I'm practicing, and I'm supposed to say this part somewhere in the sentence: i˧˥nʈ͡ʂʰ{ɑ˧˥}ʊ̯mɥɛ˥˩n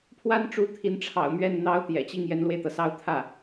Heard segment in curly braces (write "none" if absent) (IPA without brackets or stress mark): ɑ̰˨˩